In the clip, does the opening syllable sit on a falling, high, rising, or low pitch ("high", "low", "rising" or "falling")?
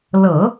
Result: low